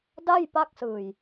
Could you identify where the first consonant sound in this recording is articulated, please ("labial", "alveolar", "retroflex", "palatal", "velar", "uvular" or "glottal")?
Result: alveolar